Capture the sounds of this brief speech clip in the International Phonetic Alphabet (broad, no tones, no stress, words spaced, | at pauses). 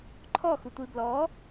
ǃʰɔxutʷi blɔ